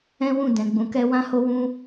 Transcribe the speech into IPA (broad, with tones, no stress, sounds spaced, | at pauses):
ɛ̃˦ w ũ˦˨ d ɛ̃˨ ɡ͡b ũ˨ k ɛ˧ w ã˦ h o˦ w ũ˦